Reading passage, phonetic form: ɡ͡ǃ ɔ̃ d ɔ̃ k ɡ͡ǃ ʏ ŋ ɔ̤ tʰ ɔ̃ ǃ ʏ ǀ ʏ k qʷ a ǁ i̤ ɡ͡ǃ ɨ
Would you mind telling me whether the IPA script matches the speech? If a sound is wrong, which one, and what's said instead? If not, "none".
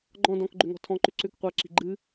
none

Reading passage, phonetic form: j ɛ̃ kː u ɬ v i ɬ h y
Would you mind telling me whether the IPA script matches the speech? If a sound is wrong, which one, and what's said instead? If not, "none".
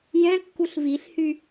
none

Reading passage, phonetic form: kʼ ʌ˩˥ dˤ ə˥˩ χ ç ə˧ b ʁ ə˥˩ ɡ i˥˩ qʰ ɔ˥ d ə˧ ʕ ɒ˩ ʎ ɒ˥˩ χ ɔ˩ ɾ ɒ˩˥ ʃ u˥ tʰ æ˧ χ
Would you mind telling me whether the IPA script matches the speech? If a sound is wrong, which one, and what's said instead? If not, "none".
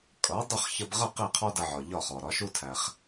ɡ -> q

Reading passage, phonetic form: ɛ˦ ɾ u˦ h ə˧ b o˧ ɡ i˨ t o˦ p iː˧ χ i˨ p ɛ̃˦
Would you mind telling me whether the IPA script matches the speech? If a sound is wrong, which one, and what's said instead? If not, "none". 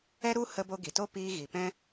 χ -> ɣ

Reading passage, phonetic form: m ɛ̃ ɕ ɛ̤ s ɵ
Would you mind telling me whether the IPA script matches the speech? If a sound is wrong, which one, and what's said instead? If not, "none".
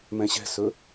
none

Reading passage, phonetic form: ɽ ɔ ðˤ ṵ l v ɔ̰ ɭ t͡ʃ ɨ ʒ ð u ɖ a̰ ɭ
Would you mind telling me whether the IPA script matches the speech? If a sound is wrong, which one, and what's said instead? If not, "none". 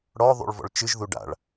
l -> ɭ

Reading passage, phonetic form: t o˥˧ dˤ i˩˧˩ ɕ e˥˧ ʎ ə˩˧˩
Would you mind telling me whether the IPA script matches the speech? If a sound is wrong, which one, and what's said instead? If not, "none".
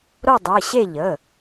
t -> ɾ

